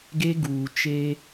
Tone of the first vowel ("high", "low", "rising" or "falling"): high